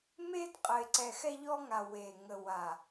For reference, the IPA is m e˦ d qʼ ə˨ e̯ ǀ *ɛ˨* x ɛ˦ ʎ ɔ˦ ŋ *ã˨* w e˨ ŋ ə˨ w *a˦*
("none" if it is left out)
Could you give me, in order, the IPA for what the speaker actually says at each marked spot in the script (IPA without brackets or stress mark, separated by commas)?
ɛ˨, a˨, a˨